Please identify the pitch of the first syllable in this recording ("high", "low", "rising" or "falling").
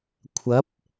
rising